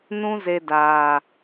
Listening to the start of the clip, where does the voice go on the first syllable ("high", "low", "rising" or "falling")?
high